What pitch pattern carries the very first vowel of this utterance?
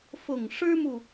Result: low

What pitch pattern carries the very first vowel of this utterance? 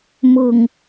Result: low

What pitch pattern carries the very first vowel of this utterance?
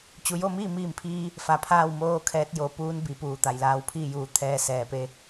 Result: low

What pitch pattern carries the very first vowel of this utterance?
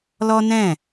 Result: high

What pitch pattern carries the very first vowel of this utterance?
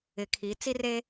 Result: low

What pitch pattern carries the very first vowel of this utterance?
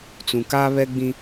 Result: low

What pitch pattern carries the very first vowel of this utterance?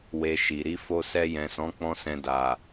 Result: low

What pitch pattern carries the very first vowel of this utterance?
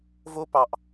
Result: high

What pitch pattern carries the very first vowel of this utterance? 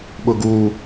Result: low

